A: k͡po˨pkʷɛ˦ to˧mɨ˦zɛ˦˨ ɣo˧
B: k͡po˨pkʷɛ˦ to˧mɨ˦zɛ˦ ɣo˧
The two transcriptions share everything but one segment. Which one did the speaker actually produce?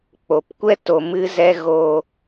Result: B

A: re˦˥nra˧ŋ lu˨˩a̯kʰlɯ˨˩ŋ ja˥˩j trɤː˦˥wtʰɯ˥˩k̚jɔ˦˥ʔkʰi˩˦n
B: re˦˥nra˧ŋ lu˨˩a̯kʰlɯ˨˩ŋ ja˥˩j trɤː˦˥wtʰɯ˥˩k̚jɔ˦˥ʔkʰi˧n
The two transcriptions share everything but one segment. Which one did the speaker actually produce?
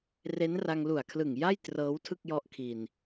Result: B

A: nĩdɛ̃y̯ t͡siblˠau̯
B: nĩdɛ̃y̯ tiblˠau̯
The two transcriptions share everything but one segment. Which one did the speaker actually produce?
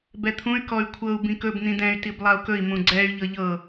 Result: B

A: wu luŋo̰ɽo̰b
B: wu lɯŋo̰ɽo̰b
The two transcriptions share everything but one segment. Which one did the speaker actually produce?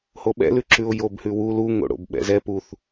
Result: A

